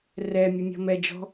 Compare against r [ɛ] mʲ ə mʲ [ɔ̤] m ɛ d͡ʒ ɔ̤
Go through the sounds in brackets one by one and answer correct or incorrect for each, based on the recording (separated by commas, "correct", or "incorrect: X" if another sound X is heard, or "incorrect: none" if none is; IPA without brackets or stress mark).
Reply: correct, correct